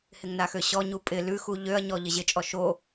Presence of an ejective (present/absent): present